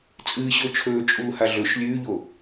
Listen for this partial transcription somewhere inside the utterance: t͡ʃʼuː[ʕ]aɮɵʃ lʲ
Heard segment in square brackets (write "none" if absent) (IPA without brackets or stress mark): h